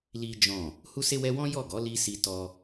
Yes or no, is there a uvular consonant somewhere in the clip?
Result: no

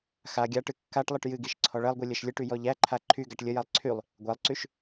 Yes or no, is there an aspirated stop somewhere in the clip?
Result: yes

